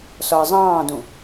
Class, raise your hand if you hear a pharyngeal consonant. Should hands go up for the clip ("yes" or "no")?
no